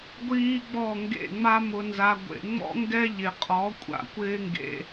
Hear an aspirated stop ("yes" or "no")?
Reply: no